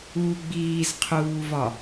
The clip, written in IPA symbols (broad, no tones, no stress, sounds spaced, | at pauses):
u ɡ͡b iː z qʰ uː v ɒ